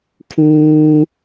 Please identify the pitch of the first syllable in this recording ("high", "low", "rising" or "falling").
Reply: high